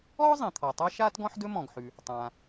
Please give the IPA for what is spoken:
ɔː˥ zˤ ĩ˩ t̪ʰ ɔ˩ tˤ a˥ ʃ aː˥ t ɡ ɔ̃˥ ħ d ɵ˥ m ɔ̃˩ ɡ ħ ʉ˩ | tˤ ãː˩

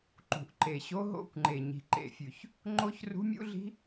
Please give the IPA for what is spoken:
ǃ ṳ˨˩ ʔ ǃ e˨˩ ɕ o˦˥ ɦ o̰˦˥ kʷ ŋ͡ǃ e˨˩ ɲ i̤˨˩ ǃ ḛ˨˩ fʲ ʉ˨˩ ç | ŋ͡ǃ o˦˥ ç r ṳ˦˥ mʲ ṵ˦˥ ɮ i̤˦˥

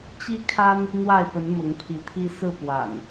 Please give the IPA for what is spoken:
t͡ɕ i˦ kʰ a˦ n | n̪ w a˥˨ ɪ̯ p ə˨˦ n m ʊ˨˦ ŋ pʰ i˨˦ t̪ʰ i˦ s ɹ̩˥˨ p w a̰˨˩ n

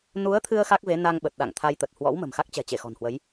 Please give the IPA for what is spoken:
n u˨˦ ə̯ t̪ʰ ɨ˧ ə̯ x a˦˥ k̚ v e˨˦ n a˧ ŋ ɓ ə˨˩ t̚ ɗ a̰˧˨ ŋ t̪ʰ a˧ j t̪ ə˨˩ t̚ h w ɔ̰˧˥ w m ə̤˨˩ m x a˦˥ k̚ t͡ɕ ɛ̤˨˩ t͡ɕ e˧˩ x ɔ̤˨˩ n h w ə˨˦ j

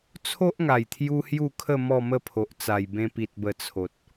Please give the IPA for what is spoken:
t͡sʰ o˦ ʔ ŋ a˨˩ j t̪ʰ j u˧ h j u˥˧ kʰ ə˥˧ m ɔ˥˧ m ə˥˧ pʰ o˨ ʔ t͡s a˨˩ j b ẽ˧ p i˨ t̚ b ə˧ t͡sʰ o˨ t̚

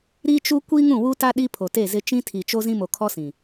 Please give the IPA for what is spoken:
ɾ i˦ t͡ʃ u˦ kʷ i˦ ŋ ũ˦˨ w u˦ t a˦ ɗ i˦ pʰ o˨ t e˦˨ z ɪ˦ t͡ʃ ĩ˦ tʰ i˨ t͡ʃ o˦ z ĩ˦ m o˨ kʰ ɔ˦ s ĩ˨

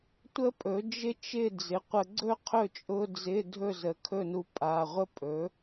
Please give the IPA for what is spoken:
tʷ ə˥ pʼ ɵ˩˥ d͡ʒ ɪ˥ t͡ʃ ɪ˥˨ d͡z ɪ˩˥ qʷ ə˧ ɡ͡ǀ ɵ˥ qʰ ɵ˥˨ t͡ʃʼ ʊ˧˥˧ d͡z ɪ˧˥˧ dʱ ɵ˥˨ z ə˩˥ kʰ ɵ˥˨ n u˧ pʼ a˩˧˩ ʁʷ ə˥ pʼ ɵ˩˥

